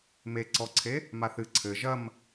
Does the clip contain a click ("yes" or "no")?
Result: yes